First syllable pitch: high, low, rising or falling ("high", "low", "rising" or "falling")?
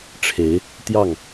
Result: rising